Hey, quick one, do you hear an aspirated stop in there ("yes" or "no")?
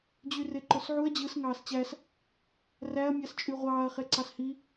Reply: no